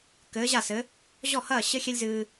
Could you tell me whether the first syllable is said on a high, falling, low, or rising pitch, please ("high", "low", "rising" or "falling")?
rising